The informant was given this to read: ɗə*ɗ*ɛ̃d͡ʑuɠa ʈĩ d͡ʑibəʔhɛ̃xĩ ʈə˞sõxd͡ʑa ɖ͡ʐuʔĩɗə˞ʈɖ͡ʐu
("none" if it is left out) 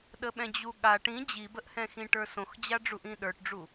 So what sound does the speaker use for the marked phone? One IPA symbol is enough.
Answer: ɓ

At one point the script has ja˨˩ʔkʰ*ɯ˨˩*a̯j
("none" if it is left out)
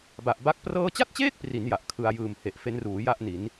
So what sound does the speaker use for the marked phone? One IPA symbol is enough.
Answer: ɯ˧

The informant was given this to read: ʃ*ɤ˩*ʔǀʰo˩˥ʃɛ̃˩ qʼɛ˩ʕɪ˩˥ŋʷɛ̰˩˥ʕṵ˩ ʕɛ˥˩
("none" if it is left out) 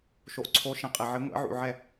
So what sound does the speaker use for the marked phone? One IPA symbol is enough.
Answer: o˩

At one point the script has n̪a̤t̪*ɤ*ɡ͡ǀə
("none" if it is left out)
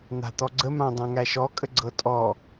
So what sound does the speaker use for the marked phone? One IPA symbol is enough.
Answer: ɔ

